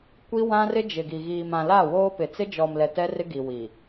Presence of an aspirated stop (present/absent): absent